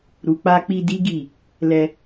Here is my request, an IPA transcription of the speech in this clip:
ɾ u˨ k͡p a˧ k͡p i˧ d i˦ ɡ i˦˨ | l ɛ˧

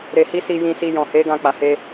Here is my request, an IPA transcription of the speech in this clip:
ɾ e˧ h i˦ s i˧ j ĩ˧ s i˧ j ɔ̃˨ h e˨˦ ɡ ã˧ k͡p a˨ h e˧

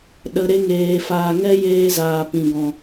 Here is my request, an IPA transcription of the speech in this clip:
ɗ ə˨ ɾ e˧ ŋ eː˨ f aː˨ ŋ ɛ˦ j eː˧ z aː˨ p ĩ˨ ɡ ɔ̃˨

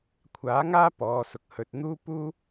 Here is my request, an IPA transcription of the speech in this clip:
kʷʰ aː˨˥ ŋ aː˥ p ɔː˨˧ s ʊ˨ k̚ h ɵ˨ t̚ n̪ uː˥ p uː˥

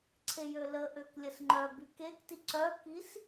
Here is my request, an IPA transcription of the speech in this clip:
ǀʰ e j ø l ə ʔ ø k lʲ ə s ŋ͡ǃ œ b y k e k t i ǀ œ k i s

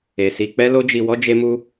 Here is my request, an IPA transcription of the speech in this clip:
e˨ s i˧ k͡p ɛ˦ l o˦ d͡ʒ i˧ w ɔ˦ d͡ʒ e˦ m u˦

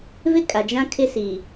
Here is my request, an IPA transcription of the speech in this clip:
v ɪ˦ kʼ a˨ d͡ʒ ã˦ kʰ ɪ˦ s i˨

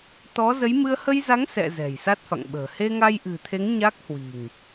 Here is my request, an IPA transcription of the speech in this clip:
t̪ ɔ˨˦ z ə˨˦ j m ɨ˧ ə̯ h ə˧ j z a˨˦ ŋ s ɛ̰˧˨ z ɛ̤˨˩ j s a˦˥ t̚ f a̰˧˨ ŋ ɓ ə̤ː˨˩ h e˧ ŋ a˧ j ʔ ɨ̤˨˩ t̪ʰ e˨˦ ŋ ɲ a˦˥ k̚ h w i̤˨˩ ŋ

